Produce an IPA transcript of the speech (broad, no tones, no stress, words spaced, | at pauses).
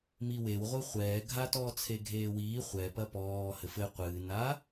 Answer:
miwewʁʷɨ χʷɛːɡʱatɔː t͡sʰeɡʱeːwiː χʷɛpɐ pɔː hɘfɘ qʷɨːna